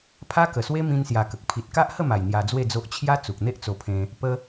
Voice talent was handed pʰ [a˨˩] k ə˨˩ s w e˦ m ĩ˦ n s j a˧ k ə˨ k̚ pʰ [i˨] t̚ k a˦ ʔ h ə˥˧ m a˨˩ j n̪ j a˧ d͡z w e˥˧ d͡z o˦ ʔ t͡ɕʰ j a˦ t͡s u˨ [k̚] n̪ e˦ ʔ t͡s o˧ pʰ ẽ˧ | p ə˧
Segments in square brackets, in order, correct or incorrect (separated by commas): incorrect, correct, correct